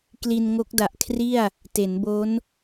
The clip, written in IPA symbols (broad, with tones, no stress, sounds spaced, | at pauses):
k l i˧ n ŋ o˦˥ k̚ d a˨˩ ʔ kʰ r i˥˩ a̯ | t e˩˦ n b o˦˥ n